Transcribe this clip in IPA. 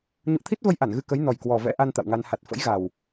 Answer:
ɲ ṵ˧˨ ə̯ t̪ʰ i˦˥ t̚ v ə˧ j ʔ a˧˩ n ɣ ɨ˧ k ə˨˦ j n ɔ˨˩ j k w ɔ˨˩ v ɛ̰˧˥ ʔ a˧ n t̪ a̰˧˨ w ŋ a˧ n h a˨˩ t̚ f ə̰˧˥ j ɣ a˨˩ w

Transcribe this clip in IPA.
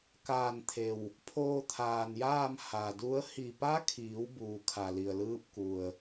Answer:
k aː˧˩ n t̪ʰ e˩ w | pʰ oː˧ t̪ʰ aː˩ n j aː˥˨ m h a˩ d u˧˥ ə̯ h i˧˩ p a˧˥ kʰ iː˩˧ w b uː˩ kʰ a˩ l i˩ ə̯ l ɯː˧ p̚ k u˩ ə̯

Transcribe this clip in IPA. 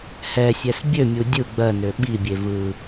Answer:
h ɛ sʲ ɛ s bʲ ø mʲ u dʲ ɯ ɡ͡b ɜ n ø ɓ i bʲ e v ɯ

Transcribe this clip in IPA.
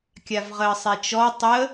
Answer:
kʲ a v ʁ əː sˤ e t͡ʃ ɔ tˤ ə

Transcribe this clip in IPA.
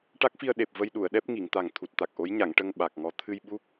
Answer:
ʈ a˦˥ k̚ f i˧ ə̯ ɗ e˨˩ p̚ v ə˧ j ɗ u˨˩˨ ə̯ ɗ ɛ˦˥ p̚ ŋ i˨˩˨ ŋ t̪ a˨˩ ŋ t̪ʰ u˨˩ t̚ t̪ a˨˩ k̚ ʔ o˧˥ j ɲ a˨˩˨ ŋ ʈ ə˧ ŋ ɓ a˨˩ k̚ ŋ ɔ˧ t̪ʰ ɨ˧ j ɓ u˦˥ k̚

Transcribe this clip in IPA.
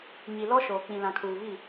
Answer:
ɲ i˨ l ɔ˦ ʃ oː˨ k͡p ĩ˨ l ã˨ kʰ uː˨ β i˦˨

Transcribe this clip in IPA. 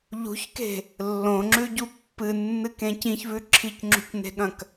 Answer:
ʎ ṳ ç k e̤ | lː õ ŋ͡ǁ ʉ ɟ u pː ɨ nː ɨ k ẽ c ĩ ç v ʉ ǁʰ i c ŋ͡ǁ ṳ c n e̤ ɠ ɐ̃ k

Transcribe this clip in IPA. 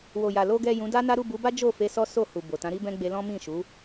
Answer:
w o˨ j a˨ l o˨ ɡ ɛ˨ j ũ˨˦ d a˦ n a˦ ɾ u˦˨ b u˨˦ b a˦ d͡ʒ o˦˨ f e˧ s ɔ˦ s o˦˨ h u˨ b o˨ t ã˨˦ ɾ i˦ b ɛ̃˦ ɡ͡b e˧ l ɔ̃˦ m ĩ˦˨ ʃ u˨˦

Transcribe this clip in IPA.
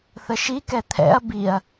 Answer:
θ ə ʃ i k ɛ t̪ʰ ɛ̰ ɐ̯ b i ɐ̯

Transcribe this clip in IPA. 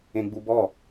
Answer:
ẽ ɡ͡b u b ɔ

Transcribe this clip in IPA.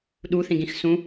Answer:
ɗ u θ ĩ ɡ ĩ x s ũ

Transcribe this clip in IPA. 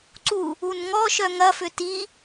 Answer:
ǀ u | u n ŋ ɔ ʃ œ ŋ ɐ f ʏ t i

